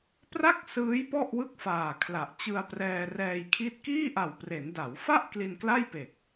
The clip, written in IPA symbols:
p r a˥˩ k̚ s ɯː˦˥ j p ɔ˥˩ ʔ w ɯ˥˩ k̚ f aː˨˩ kʰ l a˨˩ ʔ t͡ɕ ɯ˧ a̯ p r ɛː˧ r ɛː˧ j kʰ i˦˥ t̚ k iː˥˩ ʔ a˨˩ w p r e˩˦ n d a˩˦ w f a˥˩ ʔ k l i˧ n k l a˥˩ j p e˨˩ k̚

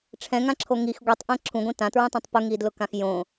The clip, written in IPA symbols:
ʈ͡ʂʰ ɛ̃ ŋ ã ǁʰ o ŋ i x ɡʷ i tˤ ʔ ɛ̃ ǁʰ ũ ɡʷ ĩ t ã t ɹ ũ tˤ ĩ tˤ p ʊ ŋ i d l ʊ k ã x j õ

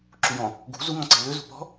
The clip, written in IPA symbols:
ǁ u j ɔ̃ | ɡ ṳ z u ŋ ɔ̃ ǀ e̤ l ʏ z ṳ p ɔ̤

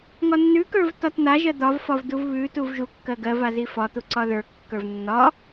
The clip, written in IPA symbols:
ŋ ɒ nː ʉ k ə˞ v t ɒ t n̪ a ʒ ɜ d̪ ɒ v f ɒ v d u v β ʉ t u v ʒ u kː ɜ ɡ ɜ v a z i f ɒ t̪ u ǀ ɒ ð ə˞ kː ə˞ v nː ɒ

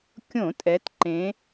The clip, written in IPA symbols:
kʲ õ˧˩˧ tʼ ɛ˩˧ t ǃ ẽ˩˧

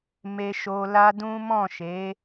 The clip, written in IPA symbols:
m e˧ ʃ o˧ l a˦ d ũ˦ m ɔ̃˦˨ ʃ e˨˦

